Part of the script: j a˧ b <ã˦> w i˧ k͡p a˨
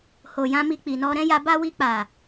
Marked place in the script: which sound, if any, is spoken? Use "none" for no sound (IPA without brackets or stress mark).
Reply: a˦